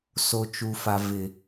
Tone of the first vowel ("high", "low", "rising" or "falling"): low